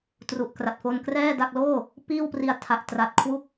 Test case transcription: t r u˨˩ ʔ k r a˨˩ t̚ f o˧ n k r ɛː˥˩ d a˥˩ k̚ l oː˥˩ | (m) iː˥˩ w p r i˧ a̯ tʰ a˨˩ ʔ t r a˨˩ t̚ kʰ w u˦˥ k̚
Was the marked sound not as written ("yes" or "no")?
yes